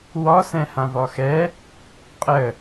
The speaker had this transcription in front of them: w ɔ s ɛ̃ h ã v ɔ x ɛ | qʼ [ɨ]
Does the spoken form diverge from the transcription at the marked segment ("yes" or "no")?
yes